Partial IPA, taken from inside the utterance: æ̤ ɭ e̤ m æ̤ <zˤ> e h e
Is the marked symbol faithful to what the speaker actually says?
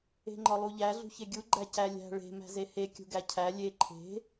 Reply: no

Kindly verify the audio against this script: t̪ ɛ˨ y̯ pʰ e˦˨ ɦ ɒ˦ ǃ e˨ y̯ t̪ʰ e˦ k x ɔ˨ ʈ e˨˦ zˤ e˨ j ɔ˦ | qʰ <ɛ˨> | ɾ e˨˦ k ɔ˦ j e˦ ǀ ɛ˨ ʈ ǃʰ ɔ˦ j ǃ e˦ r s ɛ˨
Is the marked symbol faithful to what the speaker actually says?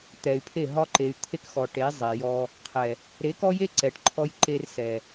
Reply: yes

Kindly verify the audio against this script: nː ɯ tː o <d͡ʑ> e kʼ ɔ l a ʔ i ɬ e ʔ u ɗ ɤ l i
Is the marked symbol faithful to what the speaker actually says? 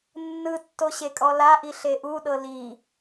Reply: no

